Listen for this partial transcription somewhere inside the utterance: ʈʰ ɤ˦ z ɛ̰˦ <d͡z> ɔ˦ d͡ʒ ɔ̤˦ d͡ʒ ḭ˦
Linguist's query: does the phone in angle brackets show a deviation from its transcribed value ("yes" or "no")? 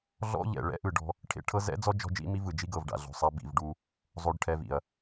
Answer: no